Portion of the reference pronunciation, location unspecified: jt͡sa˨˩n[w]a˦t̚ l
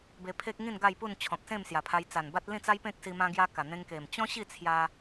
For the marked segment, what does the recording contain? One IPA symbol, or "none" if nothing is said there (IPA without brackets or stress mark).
b